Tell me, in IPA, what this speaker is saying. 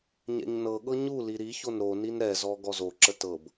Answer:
ɲ ɛ̰ ɲ n ɤ ɠ ɤ ɲ u l i ɾ i ç o n ɾ o n i n ɾ ɛ z ɔ ɡ ɔ z o ǁ ə t ɤ b

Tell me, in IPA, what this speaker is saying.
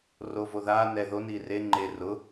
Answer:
r o v o ð a n ɛ ð o n iː r e ŋ͡ǃ e r ʊ

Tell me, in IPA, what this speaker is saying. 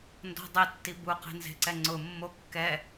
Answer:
n d ɔ̤ dˤ e tː i b u q e̤ n z e̤ ǀ ɛ ŋ͡ǀ ʊ mː o kː ɛ

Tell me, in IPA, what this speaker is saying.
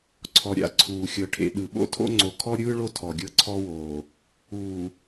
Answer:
ǀʰ ɔ˨ ɾʲ a̰˨ ǀʰ uː˨ xʲ ɤ˨ ʈʰ ḛ˨ ɗ ɯ˨ ɓ o̰˦ tʰ o̰˦ ŋ͡ǀ o˨ kʰ ɔ˦ ɾʲ ɯː˦ ɭ o˦ tʰ ɔ˨ ɡʲ ɤ˦ ǀʰ ɔ˦ w oː˨ | uː˨

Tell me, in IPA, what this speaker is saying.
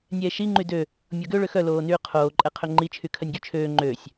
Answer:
nʲ ɛː ʃ i ŋ͡ǃ y d ø | mʲ ɔ ɡ ø ɭ ø x œ l oː n yː qʰ oː ǃʼ ɛ qʰ ø ŋ͡ǃ i t͡ʃʰ y kʰ œ nʲ ɡ y t͡ʃʰ øː ŋ͡ǃ øː sʲ

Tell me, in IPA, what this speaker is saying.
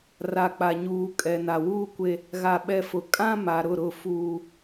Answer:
r a˨ k͡p a˨ ɲ uː˨ kʼ ɛ˨ n a˨ w uː˦ kʷ e˦ | ɣ a˨ ɓ ɛ˨ f ʊ˨ kʼ ã˦ m a˨ ɾ ʊ˦˨ ɾ ʊ˦˨ f uː˦

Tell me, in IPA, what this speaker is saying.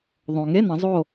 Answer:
ðˤ õ˩ ŋ e˧˥˧ n ɐ̃˩˧ zˤ o˧˩

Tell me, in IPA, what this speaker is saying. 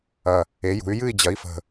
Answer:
ɐ˨˩ | e˩˥ j ṳ˩˥ y̯ j ɨ˥˨ i̯ d͡ʑ ɐ˩˥ i̯ f ə̤˨˩

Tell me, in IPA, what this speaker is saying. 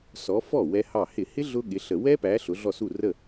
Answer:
s ɔ˨˦ f ɔ˥˩ w ɛ˦˥ h ɑ˥˩ h ɪ˧˩˧ h ɪ˦˥ ɮ ʊ˦˥ ɠ ɪ˨˦ ɬ ə˧˩˧ w ɛ˦˥ p æ˨˦ ɬ ʊ˨˦ ɮ ɔ˥˩ s u˥˩ r ə˥˩

